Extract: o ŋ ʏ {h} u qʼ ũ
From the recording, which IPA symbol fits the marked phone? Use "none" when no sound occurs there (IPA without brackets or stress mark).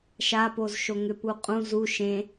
p